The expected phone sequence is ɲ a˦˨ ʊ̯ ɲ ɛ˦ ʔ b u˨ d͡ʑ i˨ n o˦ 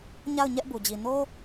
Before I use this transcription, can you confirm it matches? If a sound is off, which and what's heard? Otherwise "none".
none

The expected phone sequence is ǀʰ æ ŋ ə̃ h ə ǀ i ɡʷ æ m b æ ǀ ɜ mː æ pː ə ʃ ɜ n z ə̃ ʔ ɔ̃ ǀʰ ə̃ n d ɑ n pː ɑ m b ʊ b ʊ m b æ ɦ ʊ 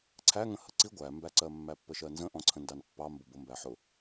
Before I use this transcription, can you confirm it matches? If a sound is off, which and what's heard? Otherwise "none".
ɦ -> ħ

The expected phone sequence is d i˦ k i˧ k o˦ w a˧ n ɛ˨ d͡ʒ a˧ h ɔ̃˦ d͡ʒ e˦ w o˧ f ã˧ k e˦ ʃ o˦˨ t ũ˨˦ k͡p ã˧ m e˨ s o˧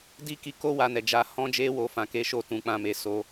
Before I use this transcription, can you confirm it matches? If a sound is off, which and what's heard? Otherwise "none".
none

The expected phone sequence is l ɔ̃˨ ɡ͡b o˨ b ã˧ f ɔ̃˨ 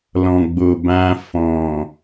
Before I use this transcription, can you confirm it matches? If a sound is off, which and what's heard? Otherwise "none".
none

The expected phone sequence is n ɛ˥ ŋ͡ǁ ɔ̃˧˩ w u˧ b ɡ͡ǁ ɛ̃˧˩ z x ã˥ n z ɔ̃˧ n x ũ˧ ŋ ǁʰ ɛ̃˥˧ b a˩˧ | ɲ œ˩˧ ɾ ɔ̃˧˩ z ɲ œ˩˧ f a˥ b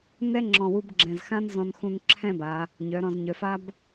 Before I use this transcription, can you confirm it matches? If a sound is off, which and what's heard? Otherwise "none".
none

